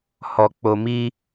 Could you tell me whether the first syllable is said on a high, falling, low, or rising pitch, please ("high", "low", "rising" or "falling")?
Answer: low